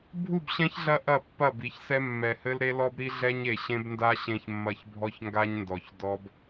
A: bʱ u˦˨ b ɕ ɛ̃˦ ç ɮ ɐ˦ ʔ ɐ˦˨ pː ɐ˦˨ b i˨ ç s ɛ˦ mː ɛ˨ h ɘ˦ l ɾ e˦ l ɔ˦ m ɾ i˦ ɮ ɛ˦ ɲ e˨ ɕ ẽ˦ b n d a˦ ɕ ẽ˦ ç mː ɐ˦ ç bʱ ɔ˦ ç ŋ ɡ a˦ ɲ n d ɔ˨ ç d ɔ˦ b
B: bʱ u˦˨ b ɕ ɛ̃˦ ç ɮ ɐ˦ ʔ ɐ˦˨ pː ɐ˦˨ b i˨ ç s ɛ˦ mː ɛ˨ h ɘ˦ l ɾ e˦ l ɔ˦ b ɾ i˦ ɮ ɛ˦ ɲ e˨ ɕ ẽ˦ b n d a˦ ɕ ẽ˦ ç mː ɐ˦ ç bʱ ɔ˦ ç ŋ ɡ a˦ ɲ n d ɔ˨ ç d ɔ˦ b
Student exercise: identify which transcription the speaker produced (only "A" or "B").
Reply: B